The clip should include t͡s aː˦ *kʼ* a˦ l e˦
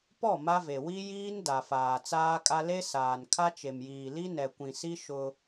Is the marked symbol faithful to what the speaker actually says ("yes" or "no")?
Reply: yes